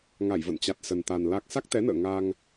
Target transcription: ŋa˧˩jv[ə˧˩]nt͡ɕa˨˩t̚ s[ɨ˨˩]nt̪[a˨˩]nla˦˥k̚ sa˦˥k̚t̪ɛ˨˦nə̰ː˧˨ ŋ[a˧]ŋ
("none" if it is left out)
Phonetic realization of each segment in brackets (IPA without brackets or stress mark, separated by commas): ə̰˧˨, ə˨˩, a˨˩, a˧